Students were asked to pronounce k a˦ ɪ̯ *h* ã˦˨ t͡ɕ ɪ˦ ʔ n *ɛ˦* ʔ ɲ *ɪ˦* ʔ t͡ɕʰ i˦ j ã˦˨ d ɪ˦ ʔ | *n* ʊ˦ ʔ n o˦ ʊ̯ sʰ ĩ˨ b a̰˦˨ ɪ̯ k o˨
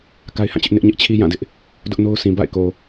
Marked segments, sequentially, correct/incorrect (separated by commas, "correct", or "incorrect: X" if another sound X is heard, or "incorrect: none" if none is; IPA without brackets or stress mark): correct, incorrect: ɪ˦, correct, incorrect: d